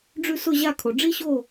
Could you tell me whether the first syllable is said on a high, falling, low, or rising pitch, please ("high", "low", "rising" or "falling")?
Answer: falling